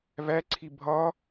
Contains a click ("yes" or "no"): yes